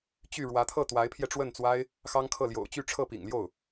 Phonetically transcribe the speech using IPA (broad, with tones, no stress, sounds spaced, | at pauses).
t͡ɕ y˥˩ ɻ w ä˧˥ t̪ʰ ɤ˥˩ t̪ w a˧˥ ɪ̯ pʰ j ɛ˧ ʈ͡ʂ w ə˥˩ n t͡s w a˥ ɪ̯ | x ɑ˥ ŋ kʰ ɤ˥˩ l j o̰˨˩ ʊ̯ t͡ɕ y˥˧ ʈ͡ʂʰ ɤ˥˩ p ḭ˨˩ ŋ l j o˥˩ ʊ̯